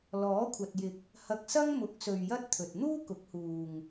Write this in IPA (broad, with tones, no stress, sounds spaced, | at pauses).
l ɔː˨˥ kʷʰ ɐ˨ t̚ j ɪ˨ k̚ | h ɐ˧ k̚ s ɐ˥ ŋ m ʊ˨˥ k̚ s ɵ˨ ɥ j ɐ˥ t̚ t̪ʰ ɵ˨ t̚ n̪ uː˥ k ʊ˨˥ k̚ h uː˨ ŋ